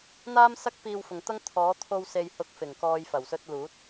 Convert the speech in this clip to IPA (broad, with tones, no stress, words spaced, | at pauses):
n̪aː˥msɐ˥k̚ piː˧wfʊ˨ŋt̪ɐ˥ŋ t̪ʰɔː˨˥t̪ʰo˧w se˨jhʊ˨˥k̚fɪ˨˩ŋkɔː˨j fɐ˨˩wsɵ˧t̚luː˨˥t̚